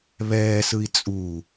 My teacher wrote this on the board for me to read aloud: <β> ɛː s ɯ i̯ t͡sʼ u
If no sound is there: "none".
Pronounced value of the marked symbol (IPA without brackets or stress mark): β